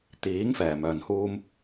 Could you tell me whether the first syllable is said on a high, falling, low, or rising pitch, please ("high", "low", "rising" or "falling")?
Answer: rising